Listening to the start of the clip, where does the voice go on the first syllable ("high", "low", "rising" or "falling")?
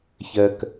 low